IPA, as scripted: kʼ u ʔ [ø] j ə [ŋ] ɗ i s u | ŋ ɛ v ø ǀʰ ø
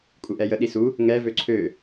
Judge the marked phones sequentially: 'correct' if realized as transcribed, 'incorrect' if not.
incorrect, incorrect

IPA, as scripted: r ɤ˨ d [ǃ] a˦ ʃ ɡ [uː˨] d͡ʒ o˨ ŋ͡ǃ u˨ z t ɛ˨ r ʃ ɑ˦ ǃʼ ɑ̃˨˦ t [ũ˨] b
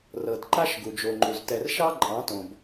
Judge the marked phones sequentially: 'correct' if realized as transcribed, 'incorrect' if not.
correct, incorrect, incorrect

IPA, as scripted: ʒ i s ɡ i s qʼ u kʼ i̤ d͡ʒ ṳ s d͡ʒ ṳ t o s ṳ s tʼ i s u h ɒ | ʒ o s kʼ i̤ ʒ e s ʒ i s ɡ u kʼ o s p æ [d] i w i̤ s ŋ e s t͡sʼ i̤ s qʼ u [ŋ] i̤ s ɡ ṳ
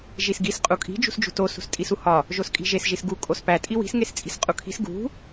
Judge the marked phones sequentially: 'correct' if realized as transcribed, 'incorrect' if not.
incorrect, incorrect

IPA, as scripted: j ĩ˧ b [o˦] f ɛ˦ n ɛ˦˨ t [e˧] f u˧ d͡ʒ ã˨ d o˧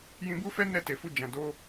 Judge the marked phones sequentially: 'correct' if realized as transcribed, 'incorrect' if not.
incorrect, incorrect

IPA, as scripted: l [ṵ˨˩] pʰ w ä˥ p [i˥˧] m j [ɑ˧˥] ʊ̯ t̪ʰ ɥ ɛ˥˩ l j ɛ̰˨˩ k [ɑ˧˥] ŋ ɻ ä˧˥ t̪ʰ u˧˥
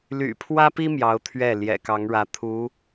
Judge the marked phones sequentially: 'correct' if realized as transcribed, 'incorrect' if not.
incorrect, incorrect, correct, correct

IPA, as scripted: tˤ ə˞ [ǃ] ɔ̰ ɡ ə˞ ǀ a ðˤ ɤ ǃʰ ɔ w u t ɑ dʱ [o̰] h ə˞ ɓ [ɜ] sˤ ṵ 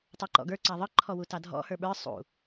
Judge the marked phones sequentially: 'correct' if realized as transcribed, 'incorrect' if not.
correct, incorrect, incorrect

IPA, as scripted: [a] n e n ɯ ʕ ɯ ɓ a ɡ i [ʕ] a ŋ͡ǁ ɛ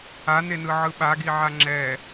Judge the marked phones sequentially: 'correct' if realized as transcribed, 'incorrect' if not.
correct, correct

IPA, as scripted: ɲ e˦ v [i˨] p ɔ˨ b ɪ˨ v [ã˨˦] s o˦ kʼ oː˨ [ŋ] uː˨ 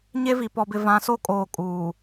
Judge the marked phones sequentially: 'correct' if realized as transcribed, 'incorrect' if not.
correct, correct, incorrect

